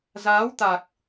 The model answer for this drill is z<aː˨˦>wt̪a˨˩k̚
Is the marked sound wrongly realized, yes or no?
no